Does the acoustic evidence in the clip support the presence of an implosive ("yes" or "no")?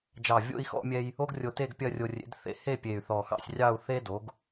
no